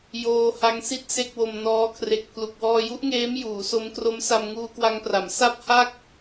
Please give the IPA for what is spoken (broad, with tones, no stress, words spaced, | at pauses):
joː˧ ha˦˥ŋsi˥˩t̚ se˥˩k̚wo˧mnɔː˦˥ kʰre˨˩k̚pʰlu˨˩k̚ wɔː˧ju˦˥ʔŋeː˦˥m juː˩˦so˦˥mkro˦˥m sa˧mŋuː˧kwa˧ŋpra˩˦m sa˥˩p̚ha˥˩k̚